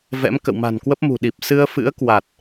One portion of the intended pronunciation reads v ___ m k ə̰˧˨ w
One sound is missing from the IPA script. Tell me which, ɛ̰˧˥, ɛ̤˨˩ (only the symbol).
ɛ̰˧˥